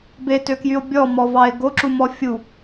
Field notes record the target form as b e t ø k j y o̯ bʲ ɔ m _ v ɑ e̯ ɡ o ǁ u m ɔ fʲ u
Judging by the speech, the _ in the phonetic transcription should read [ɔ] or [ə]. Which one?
ɔ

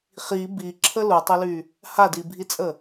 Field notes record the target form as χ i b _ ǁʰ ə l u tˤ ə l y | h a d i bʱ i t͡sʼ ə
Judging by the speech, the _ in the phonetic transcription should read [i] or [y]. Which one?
i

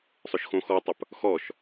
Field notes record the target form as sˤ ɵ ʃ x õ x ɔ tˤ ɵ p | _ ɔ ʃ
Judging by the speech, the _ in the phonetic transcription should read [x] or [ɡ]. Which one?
x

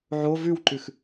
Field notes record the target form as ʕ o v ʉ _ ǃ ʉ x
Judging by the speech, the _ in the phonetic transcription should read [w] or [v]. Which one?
w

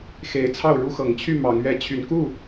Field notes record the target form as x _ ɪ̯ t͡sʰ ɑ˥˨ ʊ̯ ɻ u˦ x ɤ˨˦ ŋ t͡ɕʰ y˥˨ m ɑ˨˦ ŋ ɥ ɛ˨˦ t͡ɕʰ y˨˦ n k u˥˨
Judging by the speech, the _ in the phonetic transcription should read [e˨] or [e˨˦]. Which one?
e˨˦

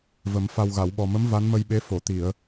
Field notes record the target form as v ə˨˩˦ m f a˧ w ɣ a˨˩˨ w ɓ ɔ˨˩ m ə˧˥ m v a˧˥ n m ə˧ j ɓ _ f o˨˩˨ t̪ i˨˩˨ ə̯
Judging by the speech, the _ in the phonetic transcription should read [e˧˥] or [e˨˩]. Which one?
e˧˥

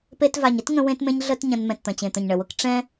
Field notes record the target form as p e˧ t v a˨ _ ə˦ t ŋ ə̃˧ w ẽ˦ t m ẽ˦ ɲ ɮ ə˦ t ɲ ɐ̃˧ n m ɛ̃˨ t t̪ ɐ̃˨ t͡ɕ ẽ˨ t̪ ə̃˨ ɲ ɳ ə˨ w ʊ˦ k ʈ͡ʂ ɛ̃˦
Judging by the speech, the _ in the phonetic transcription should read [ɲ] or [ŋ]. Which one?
ɲ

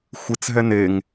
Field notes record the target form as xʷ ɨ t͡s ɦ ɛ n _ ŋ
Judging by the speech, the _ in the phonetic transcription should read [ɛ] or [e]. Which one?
e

